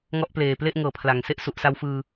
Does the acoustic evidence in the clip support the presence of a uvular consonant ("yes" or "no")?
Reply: no